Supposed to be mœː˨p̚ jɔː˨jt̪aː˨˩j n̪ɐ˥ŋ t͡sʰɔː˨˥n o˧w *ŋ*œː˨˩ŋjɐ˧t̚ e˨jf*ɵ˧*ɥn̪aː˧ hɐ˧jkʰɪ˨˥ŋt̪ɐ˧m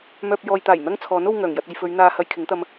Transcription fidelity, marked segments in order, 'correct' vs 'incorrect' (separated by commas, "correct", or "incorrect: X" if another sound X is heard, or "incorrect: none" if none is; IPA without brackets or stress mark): correct, incorrect: ɵ˨˧